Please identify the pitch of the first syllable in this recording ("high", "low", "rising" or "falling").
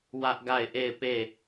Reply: high